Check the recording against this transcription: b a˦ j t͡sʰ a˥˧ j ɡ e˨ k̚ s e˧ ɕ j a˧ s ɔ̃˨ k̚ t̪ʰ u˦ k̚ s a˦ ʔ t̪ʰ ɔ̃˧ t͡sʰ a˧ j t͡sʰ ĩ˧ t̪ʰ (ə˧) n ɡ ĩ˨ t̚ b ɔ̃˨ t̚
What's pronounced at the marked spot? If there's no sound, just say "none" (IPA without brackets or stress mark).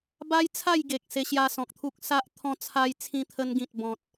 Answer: ə˧